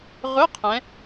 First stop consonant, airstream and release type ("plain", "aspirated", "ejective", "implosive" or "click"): aspirated